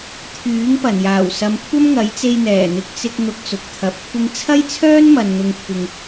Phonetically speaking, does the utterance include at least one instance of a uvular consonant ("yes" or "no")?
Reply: no